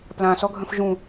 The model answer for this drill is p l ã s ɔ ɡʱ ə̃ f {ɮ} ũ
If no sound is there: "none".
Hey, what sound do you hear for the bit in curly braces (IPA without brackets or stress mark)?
ʒ